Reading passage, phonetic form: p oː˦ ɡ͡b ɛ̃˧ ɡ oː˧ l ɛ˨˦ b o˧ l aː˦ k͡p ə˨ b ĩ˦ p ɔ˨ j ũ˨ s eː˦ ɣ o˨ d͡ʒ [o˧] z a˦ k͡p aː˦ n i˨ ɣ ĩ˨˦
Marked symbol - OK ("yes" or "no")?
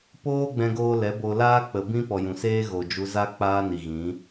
no